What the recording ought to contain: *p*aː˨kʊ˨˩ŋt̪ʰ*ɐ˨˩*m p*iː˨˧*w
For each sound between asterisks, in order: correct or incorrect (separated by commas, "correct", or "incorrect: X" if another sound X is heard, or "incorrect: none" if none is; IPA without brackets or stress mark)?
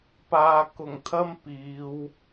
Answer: correct, incorrect: ɐ˥, correct